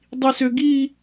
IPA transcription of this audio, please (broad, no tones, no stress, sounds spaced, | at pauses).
dˤ i s ø ɡ i